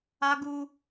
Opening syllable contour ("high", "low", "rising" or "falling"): high